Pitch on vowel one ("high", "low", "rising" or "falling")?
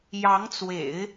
rising